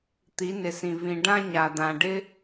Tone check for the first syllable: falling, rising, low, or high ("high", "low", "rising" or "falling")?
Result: rising